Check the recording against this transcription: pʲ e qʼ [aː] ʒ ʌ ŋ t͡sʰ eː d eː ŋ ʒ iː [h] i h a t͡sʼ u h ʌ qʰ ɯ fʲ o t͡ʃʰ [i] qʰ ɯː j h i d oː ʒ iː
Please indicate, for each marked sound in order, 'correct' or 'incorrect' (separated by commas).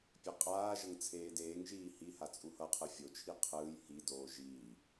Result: correct, correct, correct